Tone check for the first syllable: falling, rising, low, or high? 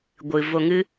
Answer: low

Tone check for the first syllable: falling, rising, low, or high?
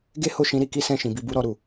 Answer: high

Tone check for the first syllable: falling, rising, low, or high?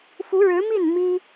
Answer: rising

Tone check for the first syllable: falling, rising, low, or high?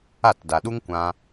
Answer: falling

